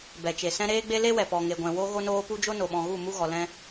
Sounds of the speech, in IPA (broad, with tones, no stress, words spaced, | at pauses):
bɛ˨t͡ʃe˨sɛ̃˦ ɾeː˦ɡ͡be˦ le˦ wɛ˨pɔ˨ŋe˨ɡʷɛ̃˨ wo˧ɣo˧noː˧pu˧ d͡ʒo˦no˨ɓɔ̃˨ɣu˦˨ mu˦ɣɔ˨lɛ̃˦